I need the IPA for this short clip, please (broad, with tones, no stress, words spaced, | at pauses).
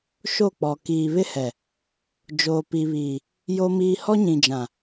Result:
ʃo˦˨k͡pɔ˨ kiː˨βɪ˦hɛ˨ | d͡ʒoː˨pi˨βiː˨ | jo˦miː˦ hɔ˦ɲĩ˨d͡ʒã˨